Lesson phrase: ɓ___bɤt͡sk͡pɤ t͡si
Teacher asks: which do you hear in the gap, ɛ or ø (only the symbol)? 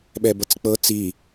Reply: ɛ